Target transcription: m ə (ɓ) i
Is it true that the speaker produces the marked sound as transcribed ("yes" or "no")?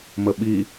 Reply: yes